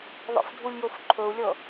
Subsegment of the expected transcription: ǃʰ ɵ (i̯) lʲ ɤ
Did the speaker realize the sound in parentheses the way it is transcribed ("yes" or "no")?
no